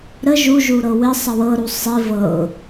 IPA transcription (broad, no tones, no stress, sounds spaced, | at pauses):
ɾ ə ʒ u ʒ u ɾ ɤ w ɪ sˤ ə w ɤ ɾ u sˤ i v ɤ ʊ̯